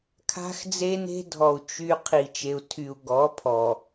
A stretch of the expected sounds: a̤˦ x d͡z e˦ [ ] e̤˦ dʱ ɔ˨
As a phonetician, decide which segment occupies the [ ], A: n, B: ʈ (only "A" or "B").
A